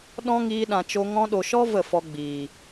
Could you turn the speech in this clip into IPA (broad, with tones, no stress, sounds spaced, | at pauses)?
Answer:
ɗ ɔ̃˦ ŋ iː˧ ɗ ã˨ t͡ʃ o˧ ŋ ɔ̃˧ ɗ o˨ ʃ ɔ˦ v ə˦˨ f ɔ˧ ɡ͡b iː˨